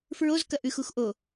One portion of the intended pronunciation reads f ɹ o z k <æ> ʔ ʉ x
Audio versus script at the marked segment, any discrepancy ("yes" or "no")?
yes